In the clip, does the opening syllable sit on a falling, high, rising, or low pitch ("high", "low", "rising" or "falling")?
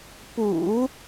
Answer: low